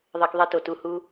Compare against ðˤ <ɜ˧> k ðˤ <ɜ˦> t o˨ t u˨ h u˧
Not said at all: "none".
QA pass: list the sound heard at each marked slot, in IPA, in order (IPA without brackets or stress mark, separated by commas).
ɜ˧, ɜ˦